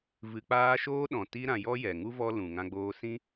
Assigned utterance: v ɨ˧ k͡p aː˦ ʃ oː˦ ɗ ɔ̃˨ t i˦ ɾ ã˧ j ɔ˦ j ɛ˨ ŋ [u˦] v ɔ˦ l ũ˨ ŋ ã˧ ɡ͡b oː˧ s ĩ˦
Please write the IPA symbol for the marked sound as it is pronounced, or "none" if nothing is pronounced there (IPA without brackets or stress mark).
u˦